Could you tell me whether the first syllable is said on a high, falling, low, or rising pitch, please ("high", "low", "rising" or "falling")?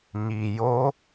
low